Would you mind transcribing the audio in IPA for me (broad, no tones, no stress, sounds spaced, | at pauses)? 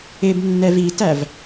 ɪ b nː ɛ v i t æ v